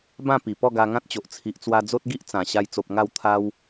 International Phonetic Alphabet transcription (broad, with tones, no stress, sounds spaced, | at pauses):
b ã˥˧ p i˨˩ p ɔ˥˧ ɡ a˧ ŋ ã˦ t̚ t͡ɕ o˨ ʔ t͡sʰ i˨ ʔ t͡s w a˧ d͡z o˦ t̚ ɡ i˦ ʔ t͡s ã˨˩ ɕ a˧ j t͡s o˨ p̚ ŋ a˥˧ w t̪ʰ a˦ w